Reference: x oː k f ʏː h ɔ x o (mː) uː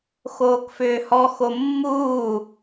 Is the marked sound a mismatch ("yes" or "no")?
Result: no